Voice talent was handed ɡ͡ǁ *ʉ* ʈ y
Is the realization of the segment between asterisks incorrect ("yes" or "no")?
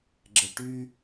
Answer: yes